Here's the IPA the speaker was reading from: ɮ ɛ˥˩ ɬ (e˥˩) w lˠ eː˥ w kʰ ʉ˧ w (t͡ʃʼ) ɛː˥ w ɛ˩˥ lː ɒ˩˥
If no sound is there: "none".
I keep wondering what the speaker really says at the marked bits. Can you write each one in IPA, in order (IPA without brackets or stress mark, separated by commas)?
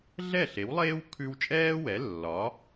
e˩˥, t͡ʃʼ